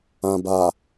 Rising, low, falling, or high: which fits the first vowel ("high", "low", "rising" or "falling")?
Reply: low